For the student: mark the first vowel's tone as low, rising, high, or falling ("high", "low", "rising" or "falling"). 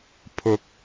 rising